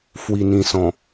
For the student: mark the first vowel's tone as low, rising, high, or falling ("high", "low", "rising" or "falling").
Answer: low